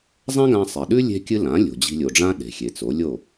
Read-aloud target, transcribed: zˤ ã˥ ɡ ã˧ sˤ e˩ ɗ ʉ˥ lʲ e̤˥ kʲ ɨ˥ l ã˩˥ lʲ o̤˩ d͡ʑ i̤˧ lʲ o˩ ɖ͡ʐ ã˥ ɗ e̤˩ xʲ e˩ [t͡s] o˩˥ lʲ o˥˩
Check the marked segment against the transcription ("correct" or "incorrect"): correct